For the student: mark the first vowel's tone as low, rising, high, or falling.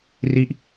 falling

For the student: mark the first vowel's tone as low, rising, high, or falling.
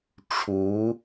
rising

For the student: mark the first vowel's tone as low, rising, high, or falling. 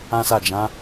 high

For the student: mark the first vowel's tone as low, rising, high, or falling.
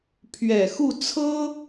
low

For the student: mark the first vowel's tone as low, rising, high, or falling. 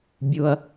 low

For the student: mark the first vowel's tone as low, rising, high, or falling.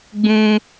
high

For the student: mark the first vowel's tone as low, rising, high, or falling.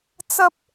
high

